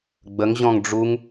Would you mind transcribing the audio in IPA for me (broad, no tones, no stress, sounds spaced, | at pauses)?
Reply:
ɡ͡b ə ŋ ʑ ɔ̃ ŋ ɖ͡ʐ u ŋ